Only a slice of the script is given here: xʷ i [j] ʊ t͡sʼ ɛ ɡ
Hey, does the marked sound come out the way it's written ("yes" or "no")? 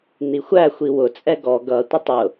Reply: no